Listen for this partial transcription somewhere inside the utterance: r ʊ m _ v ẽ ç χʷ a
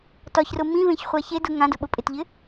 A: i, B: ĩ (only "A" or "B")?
B